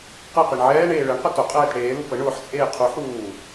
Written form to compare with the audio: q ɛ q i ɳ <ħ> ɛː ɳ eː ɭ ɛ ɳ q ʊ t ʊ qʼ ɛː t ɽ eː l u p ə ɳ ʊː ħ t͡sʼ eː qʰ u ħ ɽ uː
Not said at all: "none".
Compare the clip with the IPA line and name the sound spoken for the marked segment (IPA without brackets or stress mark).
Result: ʕ